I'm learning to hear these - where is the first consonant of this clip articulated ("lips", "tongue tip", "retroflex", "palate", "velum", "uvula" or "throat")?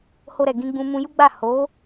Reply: throat